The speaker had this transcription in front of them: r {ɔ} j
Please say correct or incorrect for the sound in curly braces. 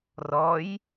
correct